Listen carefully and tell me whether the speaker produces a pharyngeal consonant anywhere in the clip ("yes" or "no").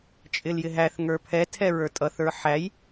yes